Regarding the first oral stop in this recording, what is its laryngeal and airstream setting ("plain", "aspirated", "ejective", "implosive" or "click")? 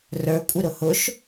ejective